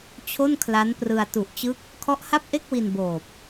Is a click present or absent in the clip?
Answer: absent